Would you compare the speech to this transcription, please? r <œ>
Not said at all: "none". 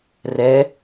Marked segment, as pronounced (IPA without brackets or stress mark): ɛ